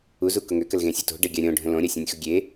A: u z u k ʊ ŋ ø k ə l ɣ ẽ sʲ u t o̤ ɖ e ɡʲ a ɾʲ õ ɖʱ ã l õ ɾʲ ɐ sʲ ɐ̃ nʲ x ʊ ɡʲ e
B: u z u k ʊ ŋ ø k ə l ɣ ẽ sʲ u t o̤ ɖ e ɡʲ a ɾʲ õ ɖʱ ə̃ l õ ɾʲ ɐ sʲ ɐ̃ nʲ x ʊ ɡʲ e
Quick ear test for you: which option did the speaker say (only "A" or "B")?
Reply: B